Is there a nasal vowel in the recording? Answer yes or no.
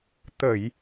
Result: no